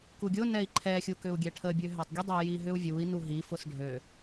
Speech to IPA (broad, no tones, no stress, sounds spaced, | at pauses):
k u ɡʲ ʊ n ɛ i̯ ǃʰ ɛ xʲ u k ʏ u̯ ɡʲ ɛ ʈʰ ə bʲ ø ɦ ɛ tˤ ɡʲ ʊ dˤ o j i ɦ ʏ u̯ vʲ u i̯ n u ɦ i f ʊ s ɖʱ ø